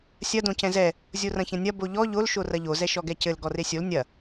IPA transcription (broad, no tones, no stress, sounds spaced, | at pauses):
sʲ ɐ d õ c ɛ̃ z ɛ | zʲ o r ɐ̃ ç ɐ̃ nʲ ɐ b o ʎ ɔ ʎ o l ʃ o r ɐ ʎ o z ɛ ʃ ɔ ɡ ɛ c ɘ l ɡ ɔ r e sʲ o l nʲ ɐ